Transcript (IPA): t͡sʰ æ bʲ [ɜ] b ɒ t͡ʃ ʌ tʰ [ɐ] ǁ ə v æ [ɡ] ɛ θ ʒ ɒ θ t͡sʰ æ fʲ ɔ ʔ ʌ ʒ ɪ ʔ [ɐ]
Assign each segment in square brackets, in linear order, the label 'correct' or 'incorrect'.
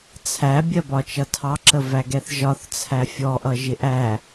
correct, incorrect: ɑ, correct, incorrect: æ

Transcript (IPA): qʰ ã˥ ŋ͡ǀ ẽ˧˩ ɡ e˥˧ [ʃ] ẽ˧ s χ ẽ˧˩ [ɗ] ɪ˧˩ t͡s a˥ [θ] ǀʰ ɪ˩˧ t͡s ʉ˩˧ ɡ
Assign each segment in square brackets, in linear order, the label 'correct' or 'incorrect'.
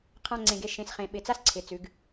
correct, incorrect: ɓ, incorrect: s

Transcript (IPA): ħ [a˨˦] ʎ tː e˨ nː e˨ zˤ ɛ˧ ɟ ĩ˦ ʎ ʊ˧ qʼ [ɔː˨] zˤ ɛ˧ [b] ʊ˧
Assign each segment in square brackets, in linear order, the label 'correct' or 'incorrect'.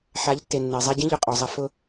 correct, incorrect: ɔ˨, incorrect: f

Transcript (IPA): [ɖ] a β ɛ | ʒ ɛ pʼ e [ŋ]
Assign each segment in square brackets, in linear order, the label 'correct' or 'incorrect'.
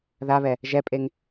incorrect: ð, correct

